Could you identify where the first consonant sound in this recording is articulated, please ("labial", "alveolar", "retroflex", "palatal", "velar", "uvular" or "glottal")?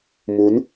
labial